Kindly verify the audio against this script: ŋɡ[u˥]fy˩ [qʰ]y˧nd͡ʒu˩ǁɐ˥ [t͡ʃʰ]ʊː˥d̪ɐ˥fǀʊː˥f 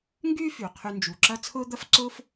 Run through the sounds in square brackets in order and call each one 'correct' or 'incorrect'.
incorrect: y˥, correct, incorrect: t͡sʰ

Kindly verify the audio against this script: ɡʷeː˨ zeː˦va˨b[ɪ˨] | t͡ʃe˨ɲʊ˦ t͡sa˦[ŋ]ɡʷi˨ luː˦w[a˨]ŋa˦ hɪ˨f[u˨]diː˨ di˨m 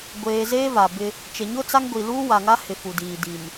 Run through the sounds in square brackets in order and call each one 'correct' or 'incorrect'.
incorrect: ɪ˦, correct, correct, correct

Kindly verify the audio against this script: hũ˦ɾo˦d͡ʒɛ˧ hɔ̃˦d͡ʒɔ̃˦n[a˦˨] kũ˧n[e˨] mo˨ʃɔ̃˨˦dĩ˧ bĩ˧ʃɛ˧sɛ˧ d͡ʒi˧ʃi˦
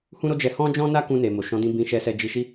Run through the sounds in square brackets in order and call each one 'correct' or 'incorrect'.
incorrect: a˦, correct

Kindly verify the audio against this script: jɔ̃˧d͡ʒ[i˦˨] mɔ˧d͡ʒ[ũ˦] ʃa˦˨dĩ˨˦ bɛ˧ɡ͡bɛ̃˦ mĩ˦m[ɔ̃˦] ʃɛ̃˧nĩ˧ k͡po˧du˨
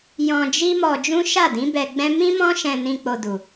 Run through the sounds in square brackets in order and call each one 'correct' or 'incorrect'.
incorrect: i˦, correct, correct

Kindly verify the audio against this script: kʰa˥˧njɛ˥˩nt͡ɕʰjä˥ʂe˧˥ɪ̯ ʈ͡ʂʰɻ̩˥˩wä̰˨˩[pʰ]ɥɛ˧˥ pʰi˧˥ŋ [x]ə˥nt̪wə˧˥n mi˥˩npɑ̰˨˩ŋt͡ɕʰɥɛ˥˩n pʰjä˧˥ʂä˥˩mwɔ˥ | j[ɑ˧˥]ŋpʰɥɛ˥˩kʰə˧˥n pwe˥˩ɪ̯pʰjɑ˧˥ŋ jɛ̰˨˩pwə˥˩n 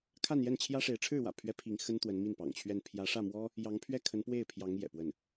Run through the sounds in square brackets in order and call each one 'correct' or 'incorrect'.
correct, correct, correct

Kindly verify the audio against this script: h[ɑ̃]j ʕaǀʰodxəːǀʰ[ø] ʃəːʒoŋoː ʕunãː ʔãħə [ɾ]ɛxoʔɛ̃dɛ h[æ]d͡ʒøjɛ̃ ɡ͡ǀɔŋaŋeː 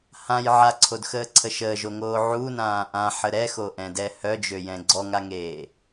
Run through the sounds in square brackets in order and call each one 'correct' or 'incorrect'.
incorrect: ã, incorrect: ə, correct, incorrect: œ

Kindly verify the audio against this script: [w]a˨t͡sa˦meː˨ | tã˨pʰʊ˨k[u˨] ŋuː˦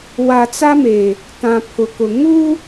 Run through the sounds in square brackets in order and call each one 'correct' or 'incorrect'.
correct, incorrect: ʊ˨

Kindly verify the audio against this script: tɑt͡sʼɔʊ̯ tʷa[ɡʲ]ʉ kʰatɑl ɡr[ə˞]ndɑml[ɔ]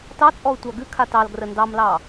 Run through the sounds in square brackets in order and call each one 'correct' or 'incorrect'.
incorrect: ɡ, incorrect: ə, incorrect: ɑ

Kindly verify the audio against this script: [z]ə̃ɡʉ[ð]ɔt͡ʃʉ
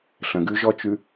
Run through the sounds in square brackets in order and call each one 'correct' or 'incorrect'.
incorrect: ɬ, incorrect: ʒ

